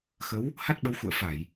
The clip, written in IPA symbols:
xə˨˦w | ha˦˥t̚ɓə˨˦w xṵ˧˨ə̯fa˧˩˨j

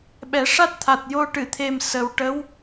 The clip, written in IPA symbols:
ɓɛ˨˩˦ʂa˦˥t̚t̪ʰa˨˩t̚ jo˧ ʈɨ˨˩˨t̪ʰe˨˩m sə˨˩wʈə˧˥w

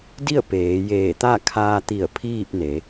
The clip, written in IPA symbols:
di˥˨ə̯ peː˩˧jeː˧˩t̪a˥˨ kʰaː˧t̪i˧˩ə̯ pʰiː˥˨p̚ne˩˧

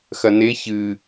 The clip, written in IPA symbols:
xɐne çɨ

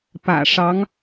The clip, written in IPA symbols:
pä̰˨˩ʂɑ˧˥ŋ

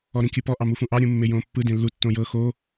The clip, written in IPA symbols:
ɔɾĩkʲɯpɔ ʔɑmufũʔɑ ɾʲũmːejõːpːɯ dẽlːu tːõjɤ xo

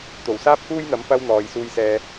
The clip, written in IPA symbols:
t̪o˨˩wsaː˥p̚kuː˥jn̪ɐ˨˥m pɐ˥w n̪ɔː˨j suː˧jsɛː˧

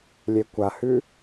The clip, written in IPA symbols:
lʲekʷahʉ

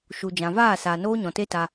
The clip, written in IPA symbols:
ʃu˨d͡ʒã˨vaː˦˨ saː˨noː˦ɲɔ̃˨ te˦ta˧

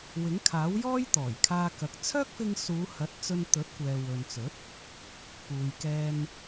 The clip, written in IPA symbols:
wɪ˨˥ŋkʰaː˨˥wjɔː˥j t̪ɔː˨˩jkʰaː˧kɐ˨˥k̚ t͡sʰœː˥k̚fɪ˧ŋsuː˨˧hɐ˨˥t̚ t͡sɵ˧nt̪ɵ˨˥t̚kʷɛː˨ wɵ˨nt͡sɵ˨˥t̚ | puː˨jkɛː˧n

